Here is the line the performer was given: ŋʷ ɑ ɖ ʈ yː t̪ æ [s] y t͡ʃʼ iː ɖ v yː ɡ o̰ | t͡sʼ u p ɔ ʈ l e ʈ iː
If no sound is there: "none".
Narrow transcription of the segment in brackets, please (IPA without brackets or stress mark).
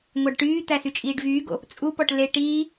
s